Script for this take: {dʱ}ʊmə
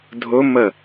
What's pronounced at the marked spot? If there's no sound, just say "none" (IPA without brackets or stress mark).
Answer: dʱ